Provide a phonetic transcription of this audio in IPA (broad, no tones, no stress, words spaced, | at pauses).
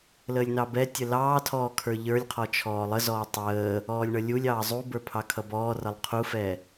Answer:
ləːlʲnɑbɛtʲə lɑːtʰɔː kʰə˞ʎə˞lʲqʰɔ t͡ʃʰɔːlˠəzɔː tˤəː | ɔːlʲɳʌlʲulʲɑː zˤubə˞ pʰɑkʰʌbɔːrʌlˠ qʰufɛ